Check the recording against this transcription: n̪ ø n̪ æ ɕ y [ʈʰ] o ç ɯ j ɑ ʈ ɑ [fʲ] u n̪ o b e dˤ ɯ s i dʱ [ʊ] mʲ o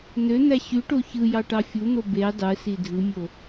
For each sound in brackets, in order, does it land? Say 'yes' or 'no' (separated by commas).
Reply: no, yes, no